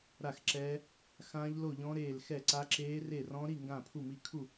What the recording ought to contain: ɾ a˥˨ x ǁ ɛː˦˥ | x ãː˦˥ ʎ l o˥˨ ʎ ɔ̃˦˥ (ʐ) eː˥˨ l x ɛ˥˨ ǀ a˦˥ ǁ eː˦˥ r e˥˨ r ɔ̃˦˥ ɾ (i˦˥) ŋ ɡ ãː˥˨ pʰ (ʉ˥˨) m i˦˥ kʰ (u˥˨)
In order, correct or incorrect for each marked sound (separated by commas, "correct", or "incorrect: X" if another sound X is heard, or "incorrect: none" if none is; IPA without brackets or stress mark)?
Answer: incorrect: ɾ, incorrect: i˥˨, incorrect: u˥˨, correct